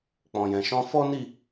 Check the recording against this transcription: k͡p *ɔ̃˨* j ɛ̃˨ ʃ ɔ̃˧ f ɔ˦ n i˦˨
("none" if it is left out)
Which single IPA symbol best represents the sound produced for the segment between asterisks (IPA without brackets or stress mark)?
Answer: ɔ̃˨